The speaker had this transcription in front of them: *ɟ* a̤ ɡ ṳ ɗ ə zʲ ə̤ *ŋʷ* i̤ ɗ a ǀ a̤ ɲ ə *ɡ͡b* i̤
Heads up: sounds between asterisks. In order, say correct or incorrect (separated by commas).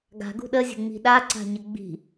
incorrect, incorrect, correct